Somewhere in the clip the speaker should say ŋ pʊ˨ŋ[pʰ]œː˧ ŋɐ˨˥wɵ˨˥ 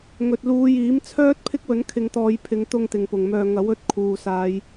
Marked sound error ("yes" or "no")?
yes